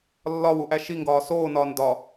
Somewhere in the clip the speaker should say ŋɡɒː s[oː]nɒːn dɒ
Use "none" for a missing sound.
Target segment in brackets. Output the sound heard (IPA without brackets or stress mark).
oː